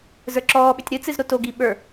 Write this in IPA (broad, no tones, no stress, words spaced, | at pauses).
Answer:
zə˞ǁɔːɓʏtʲ ɾɨt͡sɨz ɾotoɡi ɓə˞